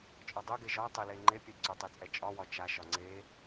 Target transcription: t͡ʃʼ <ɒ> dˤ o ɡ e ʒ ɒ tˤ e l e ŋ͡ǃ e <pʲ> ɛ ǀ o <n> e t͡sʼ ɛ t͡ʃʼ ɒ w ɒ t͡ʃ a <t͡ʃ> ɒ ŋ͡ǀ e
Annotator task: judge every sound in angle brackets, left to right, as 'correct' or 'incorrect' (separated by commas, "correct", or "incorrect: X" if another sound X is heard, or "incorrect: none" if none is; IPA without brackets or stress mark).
correct, correct, incorrect: tˤ, incorrect: ʃ